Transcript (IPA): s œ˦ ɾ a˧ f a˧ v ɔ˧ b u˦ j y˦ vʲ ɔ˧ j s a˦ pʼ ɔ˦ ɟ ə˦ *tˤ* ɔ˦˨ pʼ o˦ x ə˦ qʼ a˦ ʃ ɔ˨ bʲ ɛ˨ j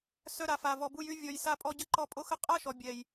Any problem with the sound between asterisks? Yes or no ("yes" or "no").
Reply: yes